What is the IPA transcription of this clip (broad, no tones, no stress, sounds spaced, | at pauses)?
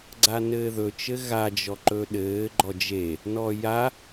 ɡ͡ǀ a n ɘː ð ɵ t͡ʃ ɘ ɣ a d͡ʒ ɔ ǃ ɵ ɗ ɘː ɡ͡ǃ ɔ d͡ʒ e | n ɔ j a